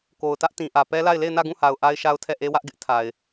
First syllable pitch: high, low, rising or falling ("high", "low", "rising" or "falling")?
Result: low